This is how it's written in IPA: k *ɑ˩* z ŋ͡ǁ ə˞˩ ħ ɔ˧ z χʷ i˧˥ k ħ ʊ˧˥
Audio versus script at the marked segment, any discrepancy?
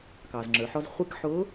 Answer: no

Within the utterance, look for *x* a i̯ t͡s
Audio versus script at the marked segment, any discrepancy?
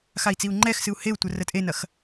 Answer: no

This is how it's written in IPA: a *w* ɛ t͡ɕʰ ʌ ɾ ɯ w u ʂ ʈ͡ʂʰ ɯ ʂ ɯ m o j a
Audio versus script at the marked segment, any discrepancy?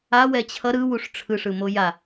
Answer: no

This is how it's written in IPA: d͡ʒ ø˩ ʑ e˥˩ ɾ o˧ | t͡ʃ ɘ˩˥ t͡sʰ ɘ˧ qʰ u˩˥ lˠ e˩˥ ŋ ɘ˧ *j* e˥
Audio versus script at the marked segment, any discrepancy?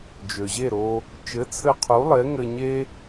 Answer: yes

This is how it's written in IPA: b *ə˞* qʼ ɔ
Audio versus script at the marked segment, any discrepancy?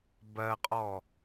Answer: yes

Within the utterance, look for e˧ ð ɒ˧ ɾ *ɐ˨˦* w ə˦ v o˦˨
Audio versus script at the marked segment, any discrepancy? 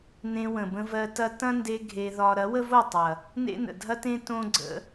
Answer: no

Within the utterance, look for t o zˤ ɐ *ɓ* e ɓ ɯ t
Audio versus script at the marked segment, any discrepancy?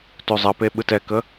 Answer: yes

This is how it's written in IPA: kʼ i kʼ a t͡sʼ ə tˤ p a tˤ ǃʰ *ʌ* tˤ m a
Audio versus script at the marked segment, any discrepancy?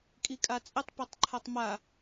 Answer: yes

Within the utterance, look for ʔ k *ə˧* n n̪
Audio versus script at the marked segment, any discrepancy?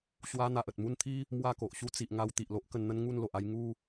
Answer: no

